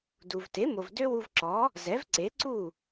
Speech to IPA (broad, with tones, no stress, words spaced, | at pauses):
du˩vte˩˥mo˩v dø˥wu˧vǁɔ˩˥ | zɛ˩˥vǀe˩˥ǀu˥˩